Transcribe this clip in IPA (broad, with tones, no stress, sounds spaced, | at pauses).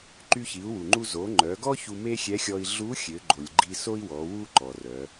ǃ y˧ ç i˩˧ u̯ w u˩ ŋ͡ǃ u˧ z o˩˧ ŋ͡ǃ œ˩˧ ɡ ɔ˥ ç u˧ m e˥ xʲ ɛ˧˥ xʲ ɔ˧ i̯ ɮ u˧˥ xʲ ø˩˧ ɡ͡ǃ o˩ lʲ ɡ͡ǃ i˧ s o˥ i̯ w ɔ˩˧ w u˥ ǃ ɔ˩ r œ˩˧